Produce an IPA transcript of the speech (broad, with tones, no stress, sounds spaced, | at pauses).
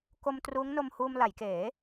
k o˧ m t r uː˦˥ ŋ n o˧ m h uː˧ m l a˩˦ j k eː˩˦